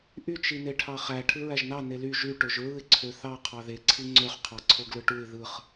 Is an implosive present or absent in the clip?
absent